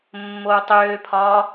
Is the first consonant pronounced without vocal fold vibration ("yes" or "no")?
no